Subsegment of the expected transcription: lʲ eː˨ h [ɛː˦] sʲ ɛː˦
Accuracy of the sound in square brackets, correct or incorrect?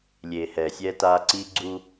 incorrect